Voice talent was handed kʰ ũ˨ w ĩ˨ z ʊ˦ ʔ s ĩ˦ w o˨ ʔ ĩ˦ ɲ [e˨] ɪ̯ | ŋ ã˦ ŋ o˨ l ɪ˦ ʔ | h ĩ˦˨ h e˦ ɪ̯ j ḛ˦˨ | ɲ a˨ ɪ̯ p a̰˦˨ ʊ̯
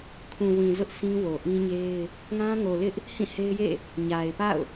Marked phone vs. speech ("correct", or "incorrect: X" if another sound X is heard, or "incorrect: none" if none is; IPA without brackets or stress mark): incorrect: e˦